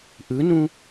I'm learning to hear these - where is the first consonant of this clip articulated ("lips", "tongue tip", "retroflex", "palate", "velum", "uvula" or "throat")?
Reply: throat